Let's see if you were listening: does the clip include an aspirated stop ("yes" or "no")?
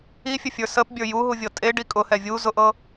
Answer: no